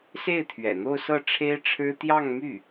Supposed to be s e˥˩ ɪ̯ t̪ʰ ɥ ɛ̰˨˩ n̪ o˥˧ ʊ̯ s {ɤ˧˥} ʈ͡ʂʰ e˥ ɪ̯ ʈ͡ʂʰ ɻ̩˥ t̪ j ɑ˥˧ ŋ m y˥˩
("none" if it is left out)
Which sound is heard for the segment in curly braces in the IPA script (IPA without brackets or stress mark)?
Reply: ɤ˥˩